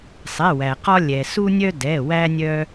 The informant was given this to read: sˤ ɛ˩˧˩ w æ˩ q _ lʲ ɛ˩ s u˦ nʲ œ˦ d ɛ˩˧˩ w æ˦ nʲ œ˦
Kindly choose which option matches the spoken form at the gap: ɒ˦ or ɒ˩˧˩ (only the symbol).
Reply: ɒ˦